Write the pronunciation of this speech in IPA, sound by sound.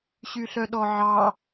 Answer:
ɕyɬœɗɔʕɑ

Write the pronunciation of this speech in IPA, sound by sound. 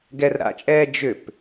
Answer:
ɡɛrɾa̰t͡ʃʼɛː d͡ʒʏp

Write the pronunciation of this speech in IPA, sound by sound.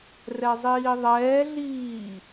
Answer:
rɛzˤiːðˤɛːɮiː

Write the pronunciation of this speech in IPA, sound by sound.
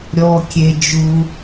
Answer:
ɾʲɔː˥kʲe˥d͡ʒu˥

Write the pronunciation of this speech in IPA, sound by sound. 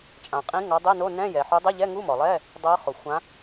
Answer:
t͡ʃʼã˩qʼĩ˨˦ ŋɔ˨˦dˤi˧˥˧no˧˥˧ nɛ̃˧˥˧jɛ˩ ħu˨˦dˤe˧˥˧ʎɛ˧˥˧ ŋu˧˥˧mɔ˩lˠɛː˧˥˧ | dˤɤ˨˦χo˩ xʷã˨˦

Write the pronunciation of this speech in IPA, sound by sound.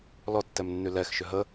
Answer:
lɔtːɛmnːy lɛx ʃʏɦə

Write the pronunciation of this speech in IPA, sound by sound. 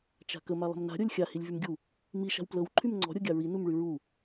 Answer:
t͡ʃa̤kə malˠə̤mna̤ ɾʲɤlʲxʲa hilʲvymɡʲu | mi ʃa̤wplɤw ǃʰymŋ͡ǀɔ̤ ɾʲɤɡʲaɹi numɭyɹu

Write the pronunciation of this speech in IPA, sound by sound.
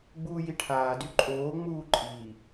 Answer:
ɡ͡buːjiʈʰaːdy ǃʼoːŋ͡muː ǃʼi

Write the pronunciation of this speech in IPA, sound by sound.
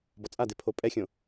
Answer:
bɔt͡sʼade pʰopʼɛxʲõ

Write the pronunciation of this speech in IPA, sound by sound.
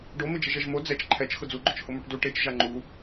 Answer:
ɖomɪ d͡ʒɪʒɛʒmo d͡zɛt͡ʃ ǃʰɛt͡ʃ xʊd͡zuɡ͡ǃʊt͡ʃ hʊmuʈdu ʈet͡ʃ ʒaŋ͡ǃu

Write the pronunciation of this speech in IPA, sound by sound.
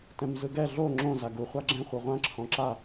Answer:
tɛ̃mzɯɡɛ ɮo ŋ͡ǁõ zaɡu χʷaɡ͡ǁɛ̃ χʷɯʁʷã ǁʰɔ̃ǁa

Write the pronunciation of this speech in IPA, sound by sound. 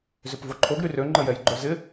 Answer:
zʏpvoǃʰoɡ ɾyrø ŋ͡ǃəjɛjɡ͡ǃœzɪ

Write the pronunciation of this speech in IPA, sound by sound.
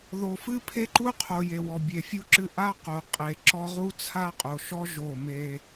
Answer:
ðo˨fɨ˦pʰe˦ǃu˦ qʰo˨ je˨wɔ˨ bʲe˨fʲu˦ǁɨ˦ ʔa˦qo˨ qʼe˨ ǁɔ˦ ʁu˦t͡sʰa˦ qʼo˨ʃɔ˦ ʒo˦˨me˦

